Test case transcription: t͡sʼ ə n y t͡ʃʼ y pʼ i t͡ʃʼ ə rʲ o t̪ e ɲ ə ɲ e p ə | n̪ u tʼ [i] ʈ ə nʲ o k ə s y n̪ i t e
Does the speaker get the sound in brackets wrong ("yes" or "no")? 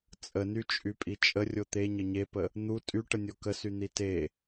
yes